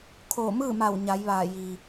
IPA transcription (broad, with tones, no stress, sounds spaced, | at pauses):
kʰ oː˧˩ m ɯː˥˨ m a˧˩ w ɲ a˩˧ j ʋ aː˧˩ j iː˩